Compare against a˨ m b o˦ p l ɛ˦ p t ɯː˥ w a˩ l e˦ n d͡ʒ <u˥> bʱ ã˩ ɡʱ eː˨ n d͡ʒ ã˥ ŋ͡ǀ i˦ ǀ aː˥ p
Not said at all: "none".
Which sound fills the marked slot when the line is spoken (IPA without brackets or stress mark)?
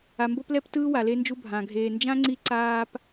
u˦